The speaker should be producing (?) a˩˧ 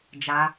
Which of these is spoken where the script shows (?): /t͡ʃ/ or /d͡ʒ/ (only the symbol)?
d͡ʒ